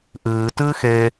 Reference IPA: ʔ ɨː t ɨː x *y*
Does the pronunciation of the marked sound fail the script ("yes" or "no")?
yes